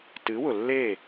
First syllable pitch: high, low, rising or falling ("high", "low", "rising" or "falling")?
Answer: rising